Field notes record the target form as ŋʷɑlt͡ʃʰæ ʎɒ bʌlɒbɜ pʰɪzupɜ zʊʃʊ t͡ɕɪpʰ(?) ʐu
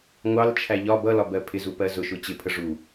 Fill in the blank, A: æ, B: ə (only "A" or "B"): B